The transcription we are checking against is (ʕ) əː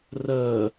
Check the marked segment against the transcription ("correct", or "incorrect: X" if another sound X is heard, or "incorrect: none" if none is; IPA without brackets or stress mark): incorrect: r